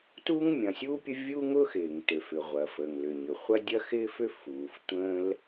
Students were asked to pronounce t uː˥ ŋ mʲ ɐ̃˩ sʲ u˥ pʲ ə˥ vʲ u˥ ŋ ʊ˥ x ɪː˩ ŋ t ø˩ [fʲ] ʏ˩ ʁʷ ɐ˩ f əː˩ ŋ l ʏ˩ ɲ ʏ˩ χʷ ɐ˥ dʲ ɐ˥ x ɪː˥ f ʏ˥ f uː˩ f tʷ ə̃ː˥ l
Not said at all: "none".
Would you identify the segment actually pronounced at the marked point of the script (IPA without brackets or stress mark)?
f